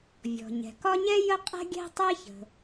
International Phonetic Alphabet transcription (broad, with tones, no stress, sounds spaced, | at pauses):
vʲ ɔ̤˩ ɲ ɛ̤˩ k ɒ˥ ɲ ɛ˥ j ə˥ qʼ ɛ̤˥ ɡʲ ɛ̤˥ tˤ ɛ˥ ç ə̤˩